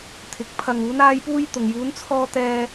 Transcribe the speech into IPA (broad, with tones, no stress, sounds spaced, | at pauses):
t̪ʰ ɪ˨˥ k̚ pʰ ɐ˨ ŋ uː˨˧ n aː˧ j p uː˧ j t̪ ʊ˨ ŋ j uː˨˧ n t͡sʰ ɔː˧ t̪ ɛː˧